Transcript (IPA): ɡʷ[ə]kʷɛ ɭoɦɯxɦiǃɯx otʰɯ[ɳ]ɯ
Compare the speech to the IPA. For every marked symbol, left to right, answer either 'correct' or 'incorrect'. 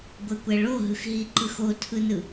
correct, incorrect: n

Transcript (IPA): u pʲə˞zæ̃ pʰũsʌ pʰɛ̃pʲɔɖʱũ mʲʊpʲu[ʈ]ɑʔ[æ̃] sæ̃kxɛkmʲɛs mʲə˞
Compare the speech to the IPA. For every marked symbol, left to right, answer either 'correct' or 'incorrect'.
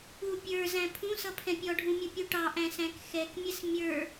correct, correct

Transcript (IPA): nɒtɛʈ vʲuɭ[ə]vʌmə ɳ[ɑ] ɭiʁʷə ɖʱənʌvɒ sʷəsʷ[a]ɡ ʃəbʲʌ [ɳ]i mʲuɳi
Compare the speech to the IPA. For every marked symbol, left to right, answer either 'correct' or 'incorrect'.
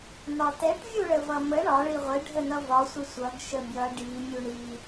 correct, incorrect: ɒ, incorrect: ʌ, incorrect: ɖ

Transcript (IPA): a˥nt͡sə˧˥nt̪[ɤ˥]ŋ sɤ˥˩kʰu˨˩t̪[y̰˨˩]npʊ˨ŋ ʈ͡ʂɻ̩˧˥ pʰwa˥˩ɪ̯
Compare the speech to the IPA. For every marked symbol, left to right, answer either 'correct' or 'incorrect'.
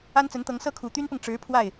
incorrect: ɤ˧˥, incorrect: y˥

